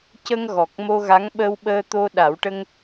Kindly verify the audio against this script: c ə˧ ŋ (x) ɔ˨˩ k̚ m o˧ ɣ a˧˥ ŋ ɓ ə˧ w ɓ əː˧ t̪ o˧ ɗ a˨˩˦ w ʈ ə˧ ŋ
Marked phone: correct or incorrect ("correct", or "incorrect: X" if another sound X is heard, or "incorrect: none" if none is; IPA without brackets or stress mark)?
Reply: incorrect: ɣ